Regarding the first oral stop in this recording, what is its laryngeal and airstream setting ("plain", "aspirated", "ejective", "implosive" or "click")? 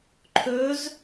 click